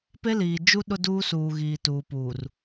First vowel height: mid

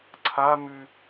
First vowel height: low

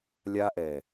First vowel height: low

